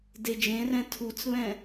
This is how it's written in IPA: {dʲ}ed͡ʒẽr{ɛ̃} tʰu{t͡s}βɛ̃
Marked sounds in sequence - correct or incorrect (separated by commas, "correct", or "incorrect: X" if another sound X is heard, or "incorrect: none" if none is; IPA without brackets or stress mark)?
incorrect: d, correct, correct